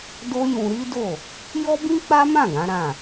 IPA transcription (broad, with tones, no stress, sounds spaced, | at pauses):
d o˦ j ũ˧ ɾ i˦ d o˦˨ | j ɔ˦ b ĩ˦ k͡p a˦ m ã˦˨ ɡ ã˨˦ ɾ ã˦˨